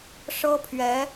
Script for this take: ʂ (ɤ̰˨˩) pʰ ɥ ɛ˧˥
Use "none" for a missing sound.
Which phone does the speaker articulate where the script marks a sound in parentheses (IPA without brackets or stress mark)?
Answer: ɤ˥